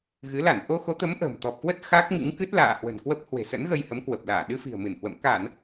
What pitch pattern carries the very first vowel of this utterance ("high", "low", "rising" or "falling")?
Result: rising